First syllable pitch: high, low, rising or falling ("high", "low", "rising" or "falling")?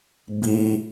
low